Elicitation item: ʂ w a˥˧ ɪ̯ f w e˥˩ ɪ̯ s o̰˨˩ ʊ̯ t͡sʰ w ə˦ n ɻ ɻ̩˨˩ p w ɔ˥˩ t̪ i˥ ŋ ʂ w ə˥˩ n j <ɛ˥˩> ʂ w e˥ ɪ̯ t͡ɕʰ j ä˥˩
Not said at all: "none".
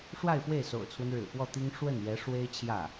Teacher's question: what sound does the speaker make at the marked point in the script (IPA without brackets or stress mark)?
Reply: ɛ˧˥